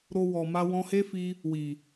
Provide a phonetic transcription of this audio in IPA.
ɾo˧wɔ˨ma˧ wɔ̃˧he˦fi˧ | wi˨

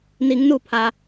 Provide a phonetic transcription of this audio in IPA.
ni˩˧ŋnu˧˩pʰa˩

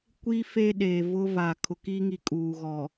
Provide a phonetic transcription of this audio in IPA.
kʷi˦ fe˦ɗe˨vʊ˦ va˨ kʰʊ˨ki˦ŋi˨ kʼuː˨ɣɔ˨

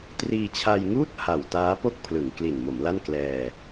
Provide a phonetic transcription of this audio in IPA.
triː˧t͡ɕʰa˧jŋuː˥˩t̚ ha˨˩wtaː˦˥po˥˩k̚pʰlɯ˩˦ŋ kli˨˩nmo˩˦mla˥˩n klɛː˧

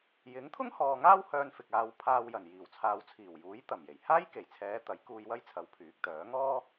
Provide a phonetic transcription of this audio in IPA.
jɪ˨˥ŋt̪ʰʊ˥ŋhɔː˨ ŋaː˥w hœː˧nfɪ˨k̚aː˨˧w pʰaː˧wjɐ˨˩n jiː˨˩wt͡sʰaː˨wt͡sʰiː˨˩wjuː˨˥j t̪ɐ˨˩mje˨˩j haː˥jke˨˩jt͡sʰɛː˨˧ t̪ɐ˨˥jkuː˧jwɐ˥jt͡sʰɐ˨˥w pʰyː˨˥k̚t̪œː˨˥ ŋɔː˥

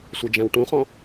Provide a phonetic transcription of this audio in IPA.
sʷɛd͡ʒæ̃wʈũχɔ̃

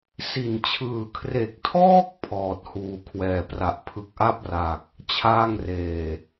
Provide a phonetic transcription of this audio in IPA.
si˨˩nt͡ɕʰɯː˨˩kʰre˨˩k̚tʰɔː˥˩k̚ pʰɔː˨˩t̚huː˨˩ kʰwɛː˨˩pra˨˩ʔ pʰɯ˨˩k̚ʔa˥˩p̚ra˨˩k̚ | t͡ɕʰaː˥˩ŋreː˨˩

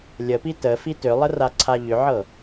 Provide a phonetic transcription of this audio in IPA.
lʲəpi təfi tʏlˠəraǀʰa ʎʏʕɤ

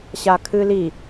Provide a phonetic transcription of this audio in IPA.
ɕakʰɨli

